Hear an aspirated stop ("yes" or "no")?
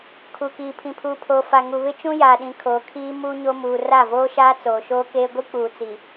yes